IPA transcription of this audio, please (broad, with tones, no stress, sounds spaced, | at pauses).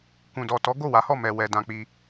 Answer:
k ũ˨ d ɔ˨ t ɔ˨˦ ɡ o˦˨ w a˨˦ h ɔ˦˨ m ɛ˨ w ɛ˧ d ã˧ k͡p i˧